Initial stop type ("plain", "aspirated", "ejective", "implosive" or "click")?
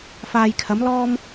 aspirated